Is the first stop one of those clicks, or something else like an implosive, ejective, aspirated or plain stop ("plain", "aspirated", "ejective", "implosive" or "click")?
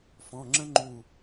click